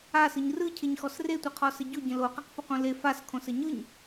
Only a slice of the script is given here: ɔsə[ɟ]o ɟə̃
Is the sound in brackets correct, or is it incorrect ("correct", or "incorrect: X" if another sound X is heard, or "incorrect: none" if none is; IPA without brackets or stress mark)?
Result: correct